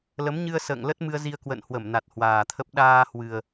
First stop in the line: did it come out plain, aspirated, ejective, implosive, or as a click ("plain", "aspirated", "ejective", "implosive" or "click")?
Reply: plain